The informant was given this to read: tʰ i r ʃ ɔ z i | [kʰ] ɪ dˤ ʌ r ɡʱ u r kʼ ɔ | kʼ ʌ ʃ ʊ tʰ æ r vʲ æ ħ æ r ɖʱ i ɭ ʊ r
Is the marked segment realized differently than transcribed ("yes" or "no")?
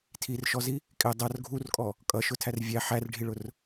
yes